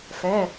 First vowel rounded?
no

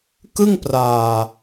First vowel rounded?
no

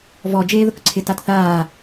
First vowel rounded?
yes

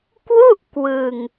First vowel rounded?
yes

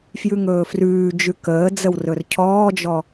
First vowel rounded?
yes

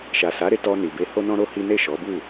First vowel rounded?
no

